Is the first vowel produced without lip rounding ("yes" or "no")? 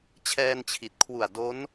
yes